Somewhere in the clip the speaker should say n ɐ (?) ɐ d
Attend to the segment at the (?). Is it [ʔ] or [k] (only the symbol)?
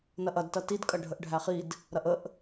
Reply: ʔ